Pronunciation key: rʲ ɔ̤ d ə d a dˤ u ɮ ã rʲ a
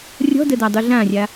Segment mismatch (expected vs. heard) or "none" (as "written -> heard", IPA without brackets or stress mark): none